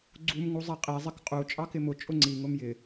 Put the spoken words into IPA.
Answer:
ɡ͡ǀum ŋuzˤɛqʼi zˤɪkqʼu t͡ʃʼɑkɪmʊ t͡ʃʼʊŋ͡ǀi ŋʊmjɪ

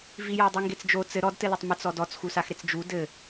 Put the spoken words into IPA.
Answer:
vijɔdˤi ŋɡet͡sd͡ʒo t͡sɘ ɾɔdtɘlotˤ mɘt͡sɔ dɔt͡sxusaxɾet͡s d͡ʒu dɘ

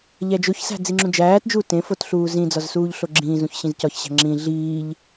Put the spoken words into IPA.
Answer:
ʎæd͡ʒoçsæ̤ d͡ziŋ͡ǁũd͡ʒæːtd͡ʒuːt ẽfot ɬuːzĩd͡zɒz suːʎɬoɡ͡ǁĩːzũç ɕĩzcɒçɕæ̤ ŋ͡ǁĩ ɮiːʎ

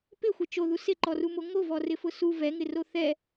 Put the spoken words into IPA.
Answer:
pɪxʷɪ t͡ʃoðu sɪǃɔrumo ŋovɔrɪfʊ su vɛŋɪro θɛ

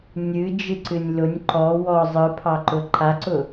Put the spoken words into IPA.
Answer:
nʲɨd͡ʒɨǀɨnʲ lʊnʲ ǃɔ wɔ zˤɯpʰɑǃʊ ǃʰaǀʊ

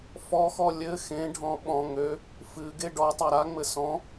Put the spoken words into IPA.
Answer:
fɔxɔ lʲɘ xẽɖʱɔ̃ ɓɔ̃ ŋø | fɨ ɡeɖɔtˤa ɾaŋ͡mɘ sɔ̃

